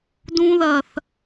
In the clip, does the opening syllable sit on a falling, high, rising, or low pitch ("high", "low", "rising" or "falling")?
high